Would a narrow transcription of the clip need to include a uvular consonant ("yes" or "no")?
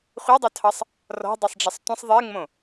yes